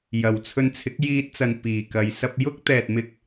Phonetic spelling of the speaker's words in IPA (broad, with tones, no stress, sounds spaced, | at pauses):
j ɐ˨˩ w t͡sʰ ɵ˧ n t͡sʰ ɪ˨˥ k̚ j iː˧ t̚ t͡s ɐ˨ n p iː˨˩ k ɐ˨˧ j s ɐ˧ p̚ j ʊ˥ k̚ t̪ ɛː˨ t̚ m ɪ˧ k̚